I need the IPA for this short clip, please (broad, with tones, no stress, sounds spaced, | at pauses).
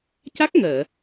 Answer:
c a˦˥ k̚ ŋ əː˨˩˨